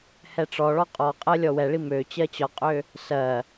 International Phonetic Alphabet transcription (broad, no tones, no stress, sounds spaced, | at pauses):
h ɛ ʈ͡ʂ ɔ ɭ ɔ qʼ ɔ qʼ ɜ lʲ ɔ w ɛ ɭ i m ø t͡ɕ ɜ t͡ɕ ɒ qʼ ø | s ɜ